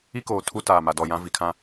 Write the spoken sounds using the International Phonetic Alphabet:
i˦ k oː˨ tʰ u˦ t aː˨ m a˨ d ɔ˨ j ã˦ v i˨ kʰ ã˦

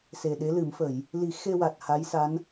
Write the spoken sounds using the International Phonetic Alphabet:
s e˨˩ ɗ e˧˥ l ɨ˨˩˦ m f ə˨˩˨ j | l i˨˩˦ x e˧ w a˨˩ t̚ h a˧˥ j s a˧˥ n

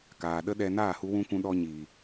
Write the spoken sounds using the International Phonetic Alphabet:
k aː˨ ɗ ə˦ ɗ ɛ˧ n aː˦˨ h u˧ w ũ˧ kʷ ũ˧ ɗ ɔ˧ ɲ iː˨

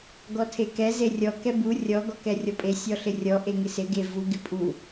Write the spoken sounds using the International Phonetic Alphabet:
ɡ ɔ tʰ e k ɛ z e rʲ ɔ k ɛ b u rʲ ɔ ɡ ɔ k ɛ rʲ ɔ pʼ e sʲ ɔ ɬ ɪ rʲ ɔ ʔ e ŋ ɪ s ɪ ɡ e v u ɡ ɪ pʼ u

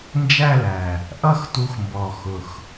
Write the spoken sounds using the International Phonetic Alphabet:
n d͡ʒ æ˥˧ l æ˨˩ | ʔ ʌ˥˧ x t u˨˥ x m b ɔ˨˩ x ʊ˨˩ x

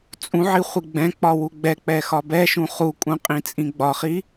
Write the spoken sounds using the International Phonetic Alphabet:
t͡sʼ ũ ʕ i χʷ i ɡ͡b ɛ̃ k͡p ɒ w u ɡ͡b ɛ k͡p ɛ x ɒ b ɛ ʃ ũ χ u kʼ ũ qʼ ĩ t͡sʼ ĩ ɡ͡b ɒ χ i

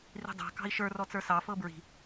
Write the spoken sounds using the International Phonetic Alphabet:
r i̤ dˤ a̤ k ɑ̤ i̯ ʃ ə˞ r ɔ t͡s ə˞ s ɑ f ɤ b ɹ i̤

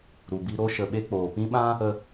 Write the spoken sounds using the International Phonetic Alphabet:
ɾ u˨ b i˧ ɾ o˧ ʃ ə˨ ɓ e˧ k͡p oː˨ p ĩ˦ ɓ ã˦ | ə˧

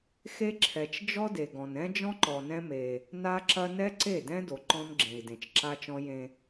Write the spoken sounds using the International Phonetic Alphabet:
x e˦ ǁʰ ɛ˨ t͡ʃ d͡ʒ ɔ˦ d e˨ ɡ ɔ̃˨ n ɛ̃˦ d͡ʒ ɔ̃˦ ǃ ɔ˨ n ɛ̃˦ m e˦ | n a˦ ǁ ɐ˦ n ɛ˦ ǀ e˦˨ d ɛ̃˦ d o˨ ǃ ɔ̃˦ n ɡ͡ǁ ẽ˨ i̯ d ẽ˨ t͡ʃ ǁ a˦ t͡ʃ ɔ̃˦ j ẽ˦

